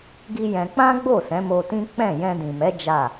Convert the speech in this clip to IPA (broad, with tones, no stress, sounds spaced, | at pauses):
ɡ i˦ j ɛ̃˧ k͡p ã˦ ɡ͡b o˦˨ s ɛ̃˨˦ m o˧ t ĩ˦ k͡p ɛ̃˦˨ j ɛ̃˧ d ĩ˨ m ɛ˨˦ d͡ʒ a˦˨